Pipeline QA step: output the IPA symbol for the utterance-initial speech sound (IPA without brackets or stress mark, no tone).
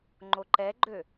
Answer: ŋ͡ǃ